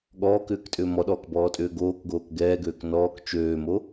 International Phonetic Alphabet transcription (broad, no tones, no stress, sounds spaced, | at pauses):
ɠ ɔː k ʏː k tʼ ʏː m ɔ ɗ ɔː k b ɔː tʼ ʏː ɡ oː k ɡ oː k ɡ ɛː ɡ øː k n ɔː k t͡ʃ øː m o